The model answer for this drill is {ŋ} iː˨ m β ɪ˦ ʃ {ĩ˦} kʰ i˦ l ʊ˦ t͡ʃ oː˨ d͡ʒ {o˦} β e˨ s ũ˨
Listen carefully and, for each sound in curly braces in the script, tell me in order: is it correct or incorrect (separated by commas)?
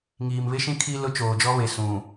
correct, correct, incorrect